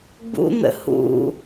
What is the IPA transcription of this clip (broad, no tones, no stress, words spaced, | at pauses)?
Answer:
ɡ͡bṵn̪ə̰ hṵ